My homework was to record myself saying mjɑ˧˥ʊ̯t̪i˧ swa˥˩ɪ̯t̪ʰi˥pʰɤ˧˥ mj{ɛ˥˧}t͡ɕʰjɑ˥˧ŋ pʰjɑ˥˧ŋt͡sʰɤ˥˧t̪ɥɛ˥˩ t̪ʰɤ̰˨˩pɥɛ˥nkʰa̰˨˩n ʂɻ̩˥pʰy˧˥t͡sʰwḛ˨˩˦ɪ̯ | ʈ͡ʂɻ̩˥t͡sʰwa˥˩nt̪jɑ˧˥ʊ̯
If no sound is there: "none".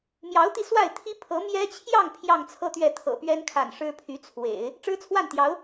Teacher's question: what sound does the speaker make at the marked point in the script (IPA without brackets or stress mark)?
ɛ˥